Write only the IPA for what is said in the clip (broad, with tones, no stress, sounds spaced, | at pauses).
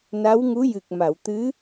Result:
n a˧˥ w ŋ u˧˥ j ɨ˨˩ k̚ m a˨˩˨ w t̪ ɨ˧˥